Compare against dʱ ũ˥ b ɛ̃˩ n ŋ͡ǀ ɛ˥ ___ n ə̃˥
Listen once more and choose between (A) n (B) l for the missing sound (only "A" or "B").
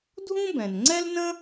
B